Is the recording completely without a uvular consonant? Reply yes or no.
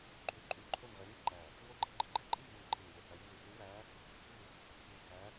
no